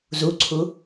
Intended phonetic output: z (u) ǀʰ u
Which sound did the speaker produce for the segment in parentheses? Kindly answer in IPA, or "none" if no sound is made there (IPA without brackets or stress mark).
u